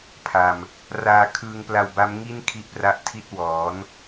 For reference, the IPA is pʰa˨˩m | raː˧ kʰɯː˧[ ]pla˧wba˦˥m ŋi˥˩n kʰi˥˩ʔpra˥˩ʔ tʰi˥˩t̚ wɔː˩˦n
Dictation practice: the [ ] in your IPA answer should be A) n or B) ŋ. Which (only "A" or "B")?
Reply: B